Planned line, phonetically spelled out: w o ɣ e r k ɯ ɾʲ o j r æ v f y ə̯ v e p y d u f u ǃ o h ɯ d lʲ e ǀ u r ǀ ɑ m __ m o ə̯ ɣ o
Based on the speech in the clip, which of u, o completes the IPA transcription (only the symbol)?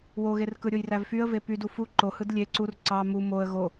u